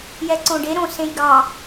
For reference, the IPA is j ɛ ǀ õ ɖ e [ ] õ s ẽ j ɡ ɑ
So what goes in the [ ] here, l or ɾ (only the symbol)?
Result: ɾ